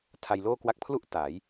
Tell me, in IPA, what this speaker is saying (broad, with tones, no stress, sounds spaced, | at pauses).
tʰ a˧ j l oː˥˩ k w a˦˥ k̚ pʰ l u˥˩ ʔ t a˩˦ j